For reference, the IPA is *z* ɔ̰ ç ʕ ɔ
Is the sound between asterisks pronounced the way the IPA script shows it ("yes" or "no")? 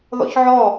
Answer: no